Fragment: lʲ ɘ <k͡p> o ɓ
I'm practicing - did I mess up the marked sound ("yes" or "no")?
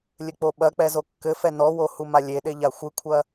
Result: no